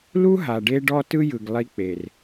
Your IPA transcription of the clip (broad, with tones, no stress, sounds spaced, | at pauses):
l u˦ ɦ a˨ ɖ e˦ ɖ ɔ˦ t ɯ˦ j ɯ˨ ɡ lˠ i˦ k͡p e˨ r